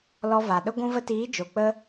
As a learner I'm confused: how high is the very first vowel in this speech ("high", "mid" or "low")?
mid